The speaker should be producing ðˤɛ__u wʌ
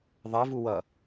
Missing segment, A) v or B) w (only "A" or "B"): A